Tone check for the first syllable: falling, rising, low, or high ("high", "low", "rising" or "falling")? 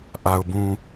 low